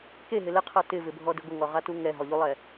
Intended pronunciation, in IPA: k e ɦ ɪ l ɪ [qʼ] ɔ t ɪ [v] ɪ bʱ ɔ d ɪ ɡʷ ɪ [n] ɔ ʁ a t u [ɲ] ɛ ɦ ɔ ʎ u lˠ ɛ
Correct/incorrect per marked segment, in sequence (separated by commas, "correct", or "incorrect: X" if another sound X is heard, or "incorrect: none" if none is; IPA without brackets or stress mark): incorrect: qʰ, correct, incorrect: ŋ, incorrect: ŋ